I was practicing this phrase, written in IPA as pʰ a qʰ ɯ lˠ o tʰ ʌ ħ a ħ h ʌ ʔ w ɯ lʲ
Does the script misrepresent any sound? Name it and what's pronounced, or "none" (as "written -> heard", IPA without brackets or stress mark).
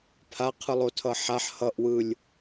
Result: none